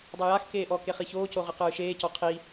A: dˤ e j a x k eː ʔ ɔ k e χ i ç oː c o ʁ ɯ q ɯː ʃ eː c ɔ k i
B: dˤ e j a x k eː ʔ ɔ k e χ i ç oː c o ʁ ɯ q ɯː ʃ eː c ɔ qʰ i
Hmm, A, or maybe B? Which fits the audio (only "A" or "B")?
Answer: B